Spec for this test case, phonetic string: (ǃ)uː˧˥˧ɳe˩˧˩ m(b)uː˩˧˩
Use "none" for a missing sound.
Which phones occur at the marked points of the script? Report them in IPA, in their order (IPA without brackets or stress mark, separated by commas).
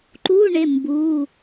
ǃ, b